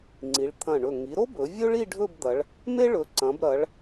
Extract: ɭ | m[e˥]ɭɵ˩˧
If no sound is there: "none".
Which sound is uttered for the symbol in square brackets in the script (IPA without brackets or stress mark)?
e˥